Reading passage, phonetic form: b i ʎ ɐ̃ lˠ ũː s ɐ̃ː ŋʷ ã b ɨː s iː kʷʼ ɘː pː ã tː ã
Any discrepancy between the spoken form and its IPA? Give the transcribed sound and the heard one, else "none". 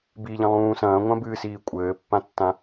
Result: none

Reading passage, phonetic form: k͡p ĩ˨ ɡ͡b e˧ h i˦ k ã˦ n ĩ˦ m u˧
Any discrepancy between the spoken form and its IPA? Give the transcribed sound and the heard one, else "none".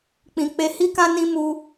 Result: ɡ͡b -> k͡p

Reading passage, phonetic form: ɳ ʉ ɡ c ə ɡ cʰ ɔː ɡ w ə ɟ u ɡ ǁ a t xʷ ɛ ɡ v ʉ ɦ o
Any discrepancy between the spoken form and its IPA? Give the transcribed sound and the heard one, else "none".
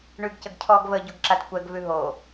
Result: w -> v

